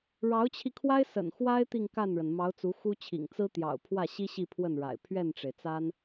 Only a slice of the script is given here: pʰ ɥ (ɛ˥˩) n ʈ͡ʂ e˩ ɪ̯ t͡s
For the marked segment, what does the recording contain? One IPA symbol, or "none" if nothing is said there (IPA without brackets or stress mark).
ɛ˥˩